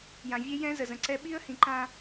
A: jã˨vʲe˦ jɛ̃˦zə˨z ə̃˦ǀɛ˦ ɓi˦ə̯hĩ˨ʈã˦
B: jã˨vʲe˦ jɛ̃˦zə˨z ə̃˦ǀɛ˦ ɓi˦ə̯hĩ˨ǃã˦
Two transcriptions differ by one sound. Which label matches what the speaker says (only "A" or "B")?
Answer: B